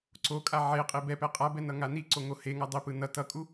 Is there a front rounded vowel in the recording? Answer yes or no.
no